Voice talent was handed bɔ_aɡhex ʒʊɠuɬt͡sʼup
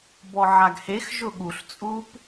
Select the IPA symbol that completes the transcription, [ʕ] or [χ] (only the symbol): ʕ